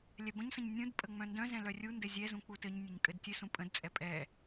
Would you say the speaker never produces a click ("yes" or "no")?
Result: yes